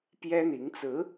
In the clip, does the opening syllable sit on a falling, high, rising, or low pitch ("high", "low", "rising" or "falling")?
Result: high